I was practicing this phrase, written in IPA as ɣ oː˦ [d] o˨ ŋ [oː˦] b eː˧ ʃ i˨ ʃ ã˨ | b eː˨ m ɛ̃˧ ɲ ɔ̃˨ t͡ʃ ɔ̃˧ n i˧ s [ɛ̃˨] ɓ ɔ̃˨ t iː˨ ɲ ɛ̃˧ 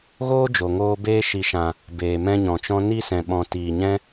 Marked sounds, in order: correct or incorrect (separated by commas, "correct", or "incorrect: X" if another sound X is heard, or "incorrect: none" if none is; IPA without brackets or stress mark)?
incorrect: d͡ʒ, incorrect: oː˧, correct